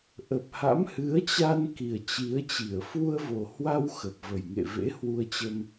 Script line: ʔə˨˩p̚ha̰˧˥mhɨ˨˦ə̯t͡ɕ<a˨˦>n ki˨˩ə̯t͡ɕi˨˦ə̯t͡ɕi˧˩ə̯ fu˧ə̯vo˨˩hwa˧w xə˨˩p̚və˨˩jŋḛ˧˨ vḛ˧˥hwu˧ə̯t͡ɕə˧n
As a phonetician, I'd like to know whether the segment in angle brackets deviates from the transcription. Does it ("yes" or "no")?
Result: yes